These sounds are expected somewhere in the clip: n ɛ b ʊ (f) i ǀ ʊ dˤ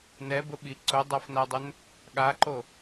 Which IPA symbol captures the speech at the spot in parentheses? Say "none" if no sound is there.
ɓ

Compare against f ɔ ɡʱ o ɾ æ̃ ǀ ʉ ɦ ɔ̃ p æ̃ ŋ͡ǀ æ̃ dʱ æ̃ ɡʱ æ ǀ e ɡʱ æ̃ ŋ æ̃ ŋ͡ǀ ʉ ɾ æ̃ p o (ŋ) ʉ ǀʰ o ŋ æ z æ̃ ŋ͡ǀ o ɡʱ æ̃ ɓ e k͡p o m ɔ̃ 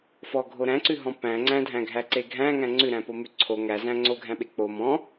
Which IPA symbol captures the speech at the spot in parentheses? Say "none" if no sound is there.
m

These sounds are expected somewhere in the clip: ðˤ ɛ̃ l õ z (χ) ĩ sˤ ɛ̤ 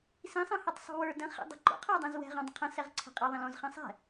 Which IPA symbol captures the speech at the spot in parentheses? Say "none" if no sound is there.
χ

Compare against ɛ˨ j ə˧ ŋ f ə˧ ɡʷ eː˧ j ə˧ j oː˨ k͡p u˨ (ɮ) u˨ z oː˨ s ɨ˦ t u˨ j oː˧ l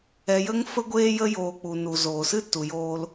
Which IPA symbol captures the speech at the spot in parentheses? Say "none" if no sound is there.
n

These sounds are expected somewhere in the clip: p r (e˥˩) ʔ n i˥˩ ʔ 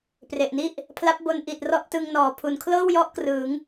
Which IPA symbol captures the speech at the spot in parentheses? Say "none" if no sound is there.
e˨˩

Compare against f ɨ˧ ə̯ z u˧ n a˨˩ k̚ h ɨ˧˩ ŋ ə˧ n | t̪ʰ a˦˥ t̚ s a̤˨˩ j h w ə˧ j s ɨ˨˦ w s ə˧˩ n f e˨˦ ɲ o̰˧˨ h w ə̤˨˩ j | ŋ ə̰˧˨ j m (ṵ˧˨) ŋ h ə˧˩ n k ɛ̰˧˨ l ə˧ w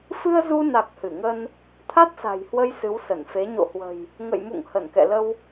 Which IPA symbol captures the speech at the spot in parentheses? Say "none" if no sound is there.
ṵ˧˨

